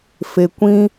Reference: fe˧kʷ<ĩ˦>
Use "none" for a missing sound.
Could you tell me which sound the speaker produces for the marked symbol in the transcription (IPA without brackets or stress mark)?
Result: ĩ˦